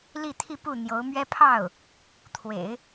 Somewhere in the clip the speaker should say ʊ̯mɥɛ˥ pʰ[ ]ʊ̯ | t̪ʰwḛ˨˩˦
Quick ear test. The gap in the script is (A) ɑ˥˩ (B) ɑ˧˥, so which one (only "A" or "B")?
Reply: A